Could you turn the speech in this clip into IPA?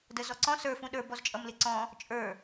d ə z ɔ ǀ ɔ̃ s ə˞ f ũ ɗ ə˞ b ɔ z t͡ʃʼ ʌ m l ɪ ǀ ɔ̃ | t͡ʃʼ ə˞

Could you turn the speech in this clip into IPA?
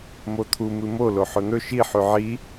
m o t̪ʰ u m ɨ m o l o ħ ɵ n̪ ɵ ʃ i ħ ʉ ʕ i

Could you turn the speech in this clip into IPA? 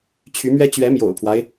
t͡ɕʰ y˧˥ m ɥ ɛ˥ t͡ɕ ɥ ɛ˧˥ m j o̰˨˩ ʊ̯ pʰ w a˦ ɪ̯

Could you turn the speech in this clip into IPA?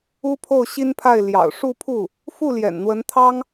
u˥ pʰ o˥˩ ʊ̯ ɕ i˥ n pʰ a˥˩ ɪ̯ l j ɑ̰˨˩ ʊ̯ ʂ u˥˧ pʰ u˥˩ | f u˥˩ l j ɛ̰˨˩ n n̪ w ə˧˥ n t̪ʰ ɑ˥ ŋ

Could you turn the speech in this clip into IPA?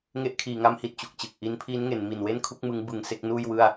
ŋ e˦˥ ʔ kʰ iː˩˦ ŋ a˦˥ m h i˨˩ t̚ t͡ɕ u˨˩ k̚ t͡ɕ ɯ˨˩ k̚ ʔ i˦˥ n pʰ iː˦˥ n ŋ e˩˦ n m i˨˩ n w e˥˩ n kʰ u˦˥ k̚ m ɯ˦˥ ŋ b ɯ˧ ŋ s e˥˩ k̚ n uː˥˩ j w ɯ˥˩ a̯

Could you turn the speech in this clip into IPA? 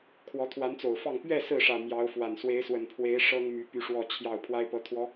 kʰ w ɔ˧˥ t̪ʰ w a˧˥ n t͡s o˨˩ ʊ̯ f ɑ˥˧ ŋ p ɥ ɛ˥˧ s ɹ̩˥˩ ʂ ä˨˩ m j ɑ˧˥ ʊ̯ f w a˨˩ n s w e˧˥ ɪ̯ s w ə˨˩ n pʰ w e˧˥ ɪ̯ ʂ ɤ˥ ŋ m y˧˥ p y˥˧ ʂ w ɔ˥˧ t͡ɕʰ j ɑ˥˩ ʊ̯ pʰ w a˥ ɪ̯ p ɤ˧˥ t̪ʰ w ɔ˧˥

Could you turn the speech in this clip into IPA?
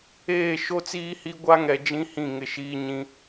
eː˦˨ ʃ o˦ t͡s iː˦ h i˦ ɡʷ a˦ ŋ ɛ˨ d͡ʒ ĩ˦ h ĩ˦˨ ŋ ɪ˦˨ ʃ iː˦ ɲ ĩ˦

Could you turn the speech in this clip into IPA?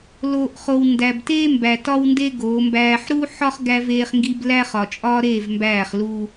l oː˨ ʔ χ o˨ w n d æ˨ b t eː˦ m b æ˨ t ɒ˦ w n d e˦ ɡ oː˨˦ m b æː˦ ħ ɾ u˦ ħ ɒ˦ χ ɡ æ˦ v eː˦ χ ŋ ɡ i˦ b l æ˦ χ ɒ˨ t͡ʃʼ ɒ˦ ɾ eː˦˨ v m b æː˦˨ χ l u˦

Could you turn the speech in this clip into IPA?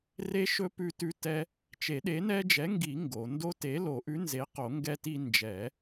r e˦ ʃ ɵ˦ p ʉ˦ t ʉ˦ t ɛ˦ | t͡ʃ e˨˩˦ ɗ e˨˥ n ɛ˦ d͡ʒ ɛ˨˥ ŋ ɡ i˨˩˦ ŋ ɡ o˨˩˦ n d o˦ t e˨˥ l o˨˩˦ ʔ ʉ˨˥ n z e˨˥ q o˨˩˦ ŋ ɡ ɛ˦ t i˦ n d͡ʒ ɛ˨˩˦

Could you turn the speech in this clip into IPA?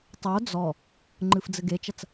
tˤ o d͡z ɔ | ŋ͡ǃ ɨ f d͡z ɘ ɡ e t͡ʃ ɐ t͡s

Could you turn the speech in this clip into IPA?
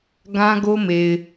ɡ ã˦ ɡ o˦ m e˨ ɪ̯

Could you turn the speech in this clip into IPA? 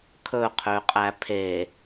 kʰ ɵ qʰ ø qʼ æ pʰ e

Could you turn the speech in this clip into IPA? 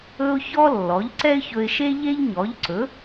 ɵ˥ ʊ̯ ç ɔ˥ lː ɔ˩˥ ʎ ǀ ɛ˥ ɪ̯ ç ɵ˧ ɪ̯ ʃ e˥ ʎ e˥ ʎ ɲ ɔ˩˥ ʎ ǀ ɵ˩˥

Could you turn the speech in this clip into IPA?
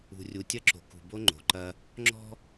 ṳ˨ rʲ u˨ tʲ ɐ˦ ǁ o̤˨ k ṳ˨ b o˦ ŋ͡ǃ o̤˨ ǃ ɐ˦ | ŋ͡ǁ ɔ̤˦

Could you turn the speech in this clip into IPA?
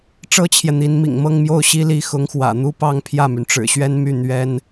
ʈ͡ʂ ɤ˥ t͡ɕʰ j ɛ˨ n̪ i˧˥ n m ḭ˨˩ ŋ m ɤ˥˧ ŋ m j o˥˩ ʊ̯ ɕ i˥ l i˧˥ x ʊ˧˥ ŋ x w ä̰˨˩ n̪ u˥ p ɑ˥˧ ŋ pʰ j ä˥˩ m y˩ n ʈ͡ʂ ɻ̩˨˩ ɕ ɥ ɛ˥ n m y˥˩ n̪ ɥ ɛ˥ n

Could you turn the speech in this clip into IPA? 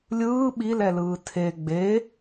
lʲ ɯː ɓ i l ɛ l ɯː tʰ e ɡ͡b e

